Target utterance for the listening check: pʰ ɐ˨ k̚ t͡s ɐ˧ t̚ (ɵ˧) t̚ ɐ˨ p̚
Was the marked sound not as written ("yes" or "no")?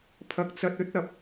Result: yes